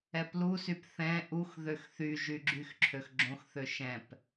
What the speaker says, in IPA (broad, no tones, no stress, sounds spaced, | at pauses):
ɛ p l u s y p θ ɛ̃ ʔ u x ð ø x θ y ʒ y ɡ͡ǁ y x ǁʰ ø x ɡ͡ǁ õ x θ ø ʃ ɛ̃ p